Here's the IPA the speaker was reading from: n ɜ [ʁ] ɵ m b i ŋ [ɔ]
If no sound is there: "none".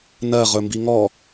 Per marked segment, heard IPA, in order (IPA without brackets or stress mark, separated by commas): ʁ, ɔ